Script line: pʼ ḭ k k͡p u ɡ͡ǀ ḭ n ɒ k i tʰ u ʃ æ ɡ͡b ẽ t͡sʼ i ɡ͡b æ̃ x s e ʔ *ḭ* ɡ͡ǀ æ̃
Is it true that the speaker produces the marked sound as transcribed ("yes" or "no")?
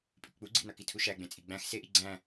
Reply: no